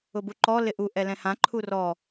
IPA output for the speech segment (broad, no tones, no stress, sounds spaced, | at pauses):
ʊ b u ǃ ɔ l ɪ ʔ u ʔ ɛ l ɛ̃ h ã ǃʰ u r ɔ